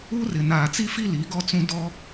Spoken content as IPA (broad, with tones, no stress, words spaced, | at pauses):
u˦rɪ˨ naː˨t͡si˦fi˦ li˨˦ ɡɔ˦t͡sũ˦ dɔ˦